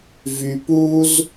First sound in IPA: v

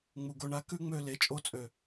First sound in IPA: ŋ͡m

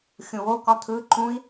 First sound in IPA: xʲ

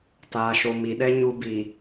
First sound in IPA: t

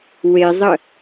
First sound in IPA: w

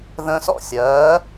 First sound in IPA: ð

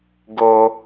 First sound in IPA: ɡ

